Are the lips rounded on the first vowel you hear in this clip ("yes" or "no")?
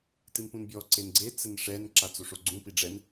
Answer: no